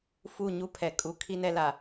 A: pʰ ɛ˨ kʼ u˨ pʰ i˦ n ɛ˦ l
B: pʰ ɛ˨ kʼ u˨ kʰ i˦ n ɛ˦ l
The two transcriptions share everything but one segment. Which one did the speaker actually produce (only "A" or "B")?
B